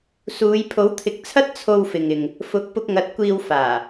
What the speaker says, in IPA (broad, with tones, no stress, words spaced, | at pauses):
suː˨˧j pʰo˨˥wt̪ʰɪ˨˥k̚t͡sʰɐ˥t̚ t͡sʰo˧wfɪ˨ŋ ɪ˨ŋ | fʊ˨˥k̚ pʊ˧k̚ŋɐ˨˥t̚kʷiː˧w faː˨˩